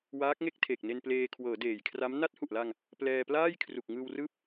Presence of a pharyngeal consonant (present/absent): absent